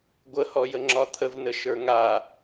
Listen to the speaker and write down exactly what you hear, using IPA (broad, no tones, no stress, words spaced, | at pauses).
ɡʷəhɔ jəŋ͡ǁɒt̪ʰəv nəʃə˞ŋa